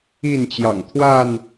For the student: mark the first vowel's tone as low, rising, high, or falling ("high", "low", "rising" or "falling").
falling